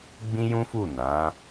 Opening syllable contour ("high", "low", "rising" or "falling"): high